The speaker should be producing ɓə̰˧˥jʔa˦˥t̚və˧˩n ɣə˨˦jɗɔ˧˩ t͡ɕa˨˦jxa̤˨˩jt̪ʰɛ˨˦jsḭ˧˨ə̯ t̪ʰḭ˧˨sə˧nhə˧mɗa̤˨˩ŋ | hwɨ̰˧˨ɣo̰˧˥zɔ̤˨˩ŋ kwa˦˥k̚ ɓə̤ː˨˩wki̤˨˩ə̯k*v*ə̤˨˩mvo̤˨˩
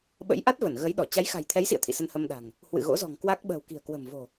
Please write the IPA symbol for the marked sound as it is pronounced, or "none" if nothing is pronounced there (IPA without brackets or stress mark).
w